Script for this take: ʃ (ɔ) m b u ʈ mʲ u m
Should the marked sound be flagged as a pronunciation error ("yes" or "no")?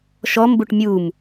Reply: no